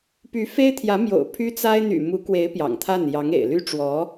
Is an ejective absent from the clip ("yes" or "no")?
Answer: yes